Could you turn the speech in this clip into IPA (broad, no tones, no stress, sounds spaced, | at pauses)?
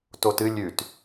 t o t ɨ lʲ ʉ t